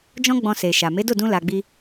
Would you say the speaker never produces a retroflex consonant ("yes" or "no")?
yes